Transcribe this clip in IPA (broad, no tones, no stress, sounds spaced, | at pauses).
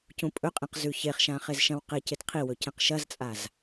c ũ pʼ ɵ qʼ ĩ q z ʉ ç e χ ʃ ã χ e z ʃ ɐ̃ w q e c e t qʰ i w ɵ c ẽ q ʃ ɐ z t͡sʼ a z